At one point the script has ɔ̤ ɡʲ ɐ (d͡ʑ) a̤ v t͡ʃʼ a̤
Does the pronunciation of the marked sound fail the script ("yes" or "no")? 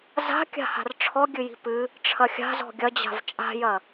no